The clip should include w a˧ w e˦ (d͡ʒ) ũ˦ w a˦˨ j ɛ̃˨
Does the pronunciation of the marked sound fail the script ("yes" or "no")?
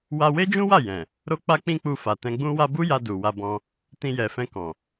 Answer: no